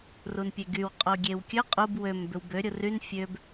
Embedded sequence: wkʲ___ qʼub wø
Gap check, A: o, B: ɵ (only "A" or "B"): B